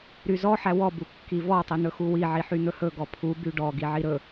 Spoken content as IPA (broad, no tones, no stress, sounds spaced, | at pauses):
ɾ y z ɔ ħ æ w ɔ b u kː i v ɔ tˤ i n̪ ɵ x u w i ʕ i ħ y n̪ ɵ h ɵ ɡ ɔ pʰ u b y ɖ ɔ ɡ i ʕ i ɾ ɵ